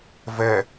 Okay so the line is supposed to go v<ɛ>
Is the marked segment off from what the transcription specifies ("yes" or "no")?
no